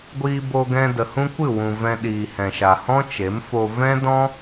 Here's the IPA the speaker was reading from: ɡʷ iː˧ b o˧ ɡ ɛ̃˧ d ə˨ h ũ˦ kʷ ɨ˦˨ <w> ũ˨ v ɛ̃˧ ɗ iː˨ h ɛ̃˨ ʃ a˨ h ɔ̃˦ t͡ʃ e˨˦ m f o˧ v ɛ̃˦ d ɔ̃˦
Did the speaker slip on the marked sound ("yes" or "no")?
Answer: no